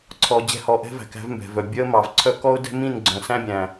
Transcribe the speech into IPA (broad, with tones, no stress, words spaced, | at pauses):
ǀʰɔ˧ d͡ʑɛ̤˦˨hɔ˧ʔɛ̤˦ væ̤˧kæ̤˦vmbɛ̤˨vœ˨ bʲœ˦ə̯mɑ˨vǀʰœ˦ kɔ˦ʊ̯dɛ̤˦mĩ˦˨n ɡ͡ǀœ̃˨sæ̃˦bʲæ̃˨